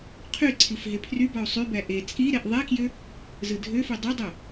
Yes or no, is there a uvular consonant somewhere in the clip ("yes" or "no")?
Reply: yes